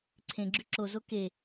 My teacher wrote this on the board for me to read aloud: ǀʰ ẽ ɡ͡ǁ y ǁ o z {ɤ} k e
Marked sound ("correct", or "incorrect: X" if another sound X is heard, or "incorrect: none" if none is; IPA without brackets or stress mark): incorrect: o